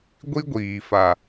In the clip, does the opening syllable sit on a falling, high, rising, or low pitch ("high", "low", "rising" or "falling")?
high